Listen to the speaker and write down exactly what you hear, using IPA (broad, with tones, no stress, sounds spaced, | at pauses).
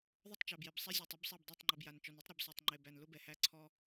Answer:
ðˤ ʊ˦˨ tˤ t͡ʃ æ˨ b j e˨ b sˤ ɛ˦ zʲ ɔ˨ tˤ ʊ˨˦ b sˤ e˦˨ b dˤ e˦˨ tˤ ŋ͡ǃ e˨ b j a˨ n t͡ʃ ɔ˨ n ɛ˦ tˤ ɾ ɔ˨ b s e˨ tˤ ŋ͡ǃ e˨ b æ˨ n l ʊ˦ b ɛ˨ h æ˦ ǀʰ ɔ˦